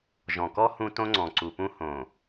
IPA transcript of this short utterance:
ʒ ɔ̃˨ k ɔ˦ h ũ˦ t õ˦ ŋ͡ǀ ɔ̃˨ ǀ u˨ p ũ˦ h õ˨

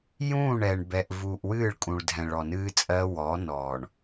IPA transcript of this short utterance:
j ũː˦˨ ɳ ɛ˨ ɳ b ɛ˨ ʔ v uː˨ ʔ w ɨː˦˨ ɭ kʼ ũ˨ ɭ dʱ ɛ̃˨ ɭ ɔ˨ n ɨː˦ t͡sʼ ɜ˦ w ɔː˨˦ n ɔː˨ ɳ

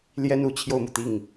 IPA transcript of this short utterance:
l j ɛ˥ n u˨˩ t͡ɕʰ j o˥˩ ʊ̯ m u˩ t̪ i˥˩ ŋ

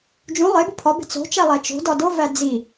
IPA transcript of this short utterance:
d͡ʒ ũ lˠ e b u pʰ ɒ b e̤ t͡s o̤ t͡ʃ æ lˠ æ t͡ʃ o̤ d ɒ d o v æ d͡z i

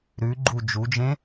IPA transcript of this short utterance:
ɾ ʉ ɡ͡ǃ u d͡ʒ u d͡ʒ ẽ

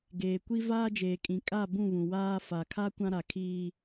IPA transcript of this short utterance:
ɡ eː˨ kʷ i˦ v aː˦ d͡ʒ eː˨ kʼ ĩ˨ kʼ a˦˨ b ũ˦˨ β ũ˨ w aː˦ f a˨ kʰ a˦ kʷ ã˦ ɾ a˨ kʰ iː˦

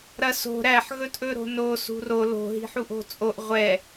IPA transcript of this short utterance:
ɾ ɐ s o̤ ɾ æ ħ ɣ ɵ t ʔ ɵ ɾ o̤ n o s ṳ r o l o̤ ɦ i̤ ħ u ʔ o̤ t͡sʼ o ʔ ʁʷ ɛ

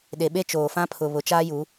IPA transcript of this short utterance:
ɗ e˨ ɓ e˦ t͡ʃ oː˨ f ã˦ pʰ ʊ˨ β ʊ˨ t͡ʃ aː˦ j u˨˦

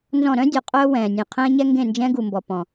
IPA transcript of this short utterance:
n z ɔ̃˦˨ ɾ œ̃˦ dʲ ɔ˨ qʼ œː˦ w ɛ̃ː˨ nʲ ẽ˨ qʰ ɛ̃ː˦ ɲ ɛ˦ ŋ ɡ ẽ˦˨ n d͡ʒ ɛ̃˦ ɡ u˨ m b ɔ˨ p ɔ̃˨

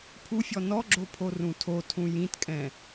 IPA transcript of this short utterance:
pʰ u fʲ ɔ n ɔ ɡ͡ǁ o pʰ o r ũ tʰ o tʰ ũ j ĩ t kʼ ɛ̃

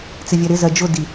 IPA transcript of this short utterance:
t͡s ɪ vʲ æ ɾ ɪ z ɜ d͡ʒ ʊ d i

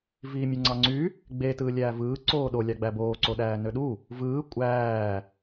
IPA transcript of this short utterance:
v iː mʲ ɯ ŋ͡ǀ ɑ ŋ͡ǀ y | ɡ͡b e t ɯː lʲ æː v ɯː ǀ oː ɗ o lʲ ɑ ɡ͡b æ b oː ǀ o ɗ æː n ø ɗ u | v ɯː kʷʼ æː

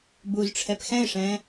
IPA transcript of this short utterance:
b u z ʈ͡ʂʰ ɛ p x ɛ̃ ɪ̯ ʂ ɛ̃ː

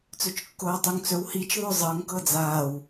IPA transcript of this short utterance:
t͡s ɵ t͡ʃ kː oː tˤ u ŋ t͡s ɵ w h i t͡ʃ ðˤ ɵ zˤ ɤ ŋ k ɤ d͡z aː w

